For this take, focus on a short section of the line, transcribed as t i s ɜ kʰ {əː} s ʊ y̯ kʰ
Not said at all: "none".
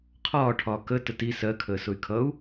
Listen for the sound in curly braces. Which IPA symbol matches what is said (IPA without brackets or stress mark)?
əː